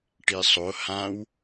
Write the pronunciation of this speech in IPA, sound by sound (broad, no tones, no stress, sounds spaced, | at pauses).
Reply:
ʈ i sˤ o h ã w